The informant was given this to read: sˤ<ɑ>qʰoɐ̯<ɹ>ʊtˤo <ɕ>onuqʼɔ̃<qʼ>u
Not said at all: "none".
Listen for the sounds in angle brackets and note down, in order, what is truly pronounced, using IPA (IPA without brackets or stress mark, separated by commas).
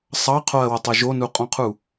ɑ, w, ʒ, qʰ